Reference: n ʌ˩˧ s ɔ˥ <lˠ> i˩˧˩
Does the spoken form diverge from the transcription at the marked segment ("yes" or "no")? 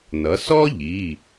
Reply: yes